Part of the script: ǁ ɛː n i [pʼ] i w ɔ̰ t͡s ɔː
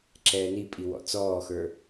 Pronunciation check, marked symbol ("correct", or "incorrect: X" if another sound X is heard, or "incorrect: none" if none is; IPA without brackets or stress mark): correct